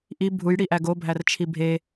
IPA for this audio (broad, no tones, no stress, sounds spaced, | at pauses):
ʔ i bʱ u j ɽ i ʔ æ ɡ o bʱ æ r t͡ʃʰ i bʱ e